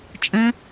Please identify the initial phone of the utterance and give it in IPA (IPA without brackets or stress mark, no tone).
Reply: t͡ʃʼ